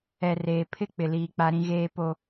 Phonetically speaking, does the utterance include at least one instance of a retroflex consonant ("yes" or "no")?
no